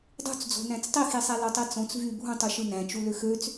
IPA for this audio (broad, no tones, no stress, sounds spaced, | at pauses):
dˤ ṳ t͡s d͡z o̤ n æ̃ t͡s tˤ i x i sˤ æ l o tˤ i t͡s õ t͡s v y bʱ ũ tˤ y ʃ ɯ n æ̃ t͡ʃ u l ø x ø t͡s